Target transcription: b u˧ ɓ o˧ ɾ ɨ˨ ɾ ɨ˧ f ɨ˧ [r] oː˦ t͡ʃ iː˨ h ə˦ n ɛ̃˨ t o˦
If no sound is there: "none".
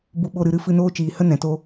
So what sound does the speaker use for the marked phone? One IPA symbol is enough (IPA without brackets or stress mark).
n